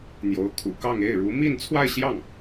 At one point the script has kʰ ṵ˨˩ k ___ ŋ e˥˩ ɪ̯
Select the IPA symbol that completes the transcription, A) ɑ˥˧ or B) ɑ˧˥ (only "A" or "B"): A